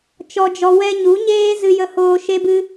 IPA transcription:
t͡ʃɔ˧d͡ʒɔ˧ wɛ˧ɲu˨˦ɲeː˦ zɨ˧jə˧hoː˧ ʃe˦bɨ˦

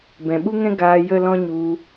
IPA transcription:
bɛ̃˨ɓu˦ŋɛ̃˦ ɡaː˧ jə˦lɔ̃˦ ɲu˧

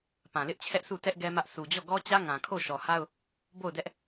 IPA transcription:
pã˨lɪ˦ʔt͡ɕʰɛ˦ʔsu˦˨ tɛ˦ʔ ɡɛ˦mä˦ʔ su˨d͡ʑɔ˦˨ ɡɔ˦t͡ɕä˦ ŋã˨kʰo˦˨ ʃɔ˨ha˦ʊ̯ | bo˦˨ʊ̯dɛ˦ʔ

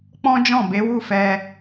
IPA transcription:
k͡pɔ̃˦d͡ʒɔ̃˦˨ be˨˦wu˦˨ fɛ˧

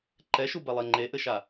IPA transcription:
ǃɛʃubɛlˠe ŋ͡ǃeʔɘʃa

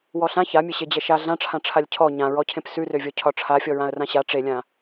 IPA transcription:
wɔɬã çamʲe ɕed͡ʑɛʃa ɮãʈ͡ʂʰãʈ͡ʂʰalʲ cʰɔ ɲãɹɔcʰẽp sʉrøvʲɔ cʰɒʈ͡ʂʰafʲɔɹãə̯ rãɕa ʈ͡ʂelʲã

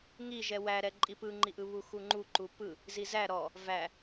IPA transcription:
ŋiʒɛ wæɾɛ ǃʼipɯŋ͡ǃiʔɯ βuxuŋ͡ǃu ǃupɯ | zizæ ɾɔ | væ

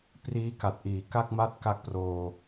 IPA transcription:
priː˦˥ka˨˩t̚ʔiː˩˦ ka˥˩k̚ma˥˩t̚ ka˦˥k̚proː˧

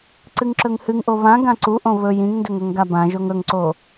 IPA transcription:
ǀɨŋǁɵŋhɨŋʔo βã ɡãǀuʔõ βɵ jĩŋndɵŋ ɵŋɡabãʒoŋ ɵŋǀo

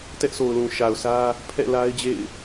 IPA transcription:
tɛ˦ʔso˨ʊ̯lũ˨ ʃa˨ʊ̯sä˦ | pʰɛ̰˦˨ la˦ɪ̯d͡ʑḛ˦˨ɪ̯

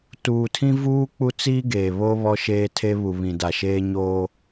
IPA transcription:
tuː˨tʰĩ˦ vuː˦ k͡pu˦t͡siː˦ ɡeː˨βo˦ βɔ˦ʃeː˦tʰe˦ βu˨βĩ˨da˨ ʃeː˦ɲoː˦

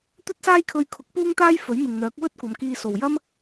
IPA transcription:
t̪ɵ˥t̚saː˥jkʰɵ˧ɥkʰʊ˨˥k̚ puː˥ŋt̪aː˥j fɵ˨˥ɥmɪ˨ŋn̪œː˨˥k̚ wɵ˥t̚kʷɐ˨˧mkiː˧so˨w jɐ˥m

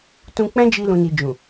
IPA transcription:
tũ˧k͡pɛ̃˦d͡ʒi˧ lũ˨ni˨d͡ʒũ˨

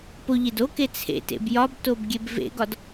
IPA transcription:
poʎed oke t͡sʰḛtḛb jɒbtob ɡʲebvḛɡɒd

